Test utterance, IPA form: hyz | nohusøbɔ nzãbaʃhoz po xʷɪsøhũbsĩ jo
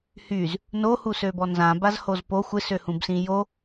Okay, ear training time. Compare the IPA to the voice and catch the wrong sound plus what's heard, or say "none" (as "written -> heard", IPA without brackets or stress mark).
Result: ʃ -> z